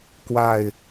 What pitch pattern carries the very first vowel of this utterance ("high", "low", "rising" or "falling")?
falling